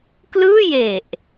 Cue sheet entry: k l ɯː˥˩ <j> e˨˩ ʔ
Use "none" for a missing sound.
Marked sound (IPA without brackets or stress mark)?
j